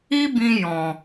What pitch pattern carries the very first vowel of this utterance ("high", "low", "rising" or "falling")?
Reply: high